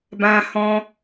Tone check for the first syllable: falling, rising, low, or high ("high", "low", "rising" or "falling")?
high